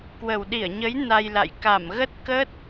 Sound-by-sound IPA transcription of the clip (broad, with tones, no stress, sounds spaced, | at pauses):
k w ə˨˩ w ɗ i˧˩ ə̯ ɲ ə˨˦ j n a˧ j l a̰˧˨ j k a˧˩ m ɣ ə˦˥ t̚ k ə˦˥ t̚